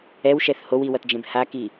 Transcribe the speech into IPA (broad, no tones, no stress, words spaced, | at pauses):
ɛwʃɛθ howiwʌtd͡ʒẽb haki